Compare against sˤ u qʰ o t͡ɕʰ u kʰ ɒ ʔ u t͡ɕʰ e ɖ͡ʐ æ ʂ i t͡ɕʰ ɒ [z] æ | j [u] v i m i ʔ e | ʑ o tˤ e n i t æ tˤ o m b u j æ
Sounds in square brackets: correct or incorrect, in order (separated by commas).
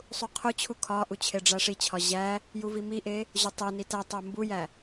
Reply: incorrect, correct